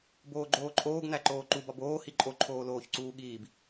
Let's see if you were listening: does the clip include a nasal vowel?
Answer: no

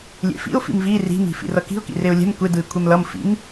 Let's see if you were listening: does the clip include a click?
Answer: no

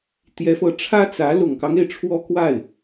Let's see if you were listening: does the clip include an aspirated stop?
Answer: yes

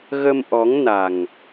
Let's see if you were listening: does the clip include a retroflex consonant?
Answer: no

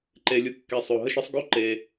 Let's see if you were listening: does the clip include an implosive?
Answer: no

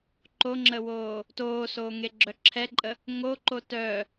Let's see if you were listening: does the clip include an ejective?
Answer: yes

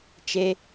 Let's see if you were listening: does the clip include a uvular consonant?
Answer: no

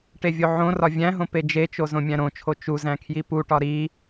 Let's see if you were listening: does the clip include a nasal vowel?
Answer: yes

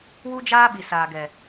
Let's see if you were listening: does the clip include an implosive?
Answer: yes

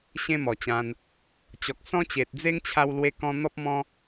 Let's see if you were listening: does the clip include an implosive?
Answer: no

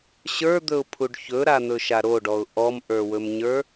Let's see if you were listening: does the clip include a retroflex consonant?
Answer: yes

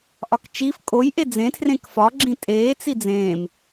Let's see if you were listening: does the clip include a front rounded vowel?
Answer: no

